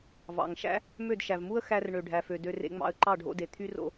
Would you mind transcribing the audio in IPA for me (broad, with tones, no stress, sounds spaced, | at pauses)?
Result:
v ɑ̰˨ ŋ ʃ æ̰˦ | m ø˦˨ d ʃ æ˨ v m u˦ ə̯ x æ˧ r ɳ ø˨ ɖʱ æ˨ f ø˨ d ø˧ r ḛ˧ ŋ͡m ɑ̰˧ ə̯ ǃ ɑ˦˨ ɖʱ o̰˧ d e˨ t̪ʰ y˦ r o̰˦